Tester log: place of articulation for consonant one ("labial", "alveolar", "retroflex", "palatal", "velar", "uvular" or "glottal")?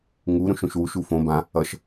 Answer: velar